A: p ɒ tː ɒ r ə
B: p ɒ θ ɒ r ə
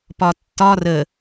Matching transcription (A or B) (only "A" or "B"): A